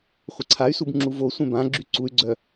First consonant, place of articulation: uvular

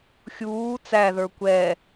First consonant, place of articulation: velar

